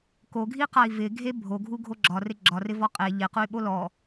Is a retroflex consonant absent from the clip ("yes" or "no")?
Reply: yes